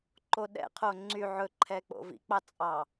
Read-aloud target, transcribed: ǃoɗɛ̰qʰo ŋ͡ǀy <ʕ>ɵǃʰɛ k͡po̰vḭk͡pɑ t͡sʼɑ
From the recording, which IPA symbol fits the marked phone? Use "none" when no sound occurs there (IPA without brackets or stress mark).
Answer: ʕ